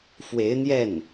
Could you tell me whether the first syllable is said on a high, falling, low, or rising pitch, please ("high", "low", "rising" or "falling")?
rising